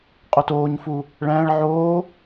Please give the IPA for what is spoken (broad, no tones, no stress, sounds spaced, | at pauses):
qʼ o t oː ɲ f u | ɭ æ̃ ɭ ʕ oː